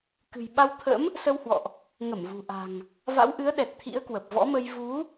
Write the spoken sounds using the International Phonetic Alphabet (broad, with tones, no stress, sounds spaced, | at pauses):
k ɨ̤˨˩ j ɓ a˧ w t̪ʰ ə̰˧˥ m | s ə˧ w h w ɔ̰˧˨ ʔ | ŋ ə˧˩ m v ṳ˨˩ ʔ a̤˨˩ ŋ | v a̰˧˥ w ʔ ɨ˨˦ ə̯ ɗ ɛ˨˩ t̚ t̪ʰ ḭ˧˥ ə̯ k w ə˨˩ p̚ v ɔ̰˧˥ m ə˧ j v u˨˦